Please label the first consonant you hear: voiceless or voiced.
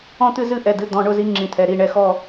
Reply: voiceless